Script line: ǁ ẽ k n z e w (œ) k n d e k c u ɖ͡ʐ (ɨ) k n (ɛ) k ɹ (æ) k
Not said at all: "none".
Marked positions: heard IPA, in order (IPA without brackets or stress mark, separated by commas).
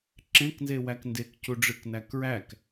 æ, ɨ, æ, æ